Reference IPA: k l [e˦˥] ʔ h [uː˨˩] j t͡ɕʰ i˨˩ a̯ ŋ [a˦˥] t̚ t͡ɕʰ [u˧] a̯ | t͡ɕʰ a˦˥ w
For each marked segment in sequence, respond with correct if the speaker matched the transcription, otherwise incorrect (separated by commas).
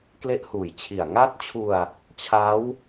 correct, correct, correct, correct